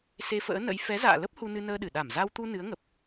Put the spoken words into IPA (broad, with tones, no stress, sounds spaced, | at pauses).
s e˧ f ə̰ː˧˥ n ə̰˧˥ j f ɛ˨˦ z a̰ː˧˨ l ə˦˥ p̚ h u˧ n ɨ˧ n əː˧ ɗ ɨ˧˩ ɗ a˧˩ m z a˧ w t̪ u˧ n ɨ˨˦ ə̯ ŋ ə˨˩ p̚